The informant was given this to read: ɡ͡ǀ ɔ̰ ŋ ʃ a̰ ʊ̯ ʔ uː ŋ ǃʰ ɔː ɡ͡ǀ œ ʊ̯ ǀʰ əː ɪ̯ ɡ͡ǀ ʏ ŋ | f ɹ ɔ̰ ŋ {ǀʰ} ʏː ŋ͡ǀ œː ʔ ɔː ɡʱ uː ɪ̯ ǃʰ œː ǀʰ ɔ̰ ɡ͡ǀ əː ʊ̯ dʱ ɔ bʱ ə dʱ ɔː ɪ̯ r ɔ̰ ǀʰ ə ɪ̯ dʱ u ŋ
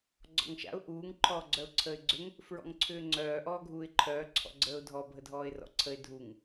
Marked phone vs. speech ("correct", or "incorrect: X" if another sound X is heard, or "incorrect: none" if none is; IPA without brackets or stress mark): correct